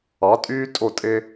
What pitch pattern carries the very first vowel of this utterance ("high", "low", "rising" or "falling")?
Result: rising